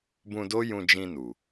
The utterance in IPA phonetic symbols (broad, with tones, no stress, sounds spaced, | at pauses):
b ũ˧ d o˦ j ũ˧ d͡ʒ ĩ˧ n u˨